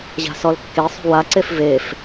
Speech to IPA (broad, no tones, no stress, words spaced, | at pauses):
ʑa̤sɔlkːesˤṳ waǀef vef